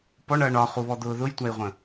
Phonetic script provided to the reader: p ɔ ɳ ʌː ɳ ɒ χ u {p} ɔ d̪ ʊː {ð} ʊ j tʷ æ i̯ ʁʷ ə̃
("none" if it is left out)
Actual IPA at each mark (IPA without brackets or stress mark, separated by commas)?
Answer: β, ð